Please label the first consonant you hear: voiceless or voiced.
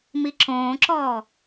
voiced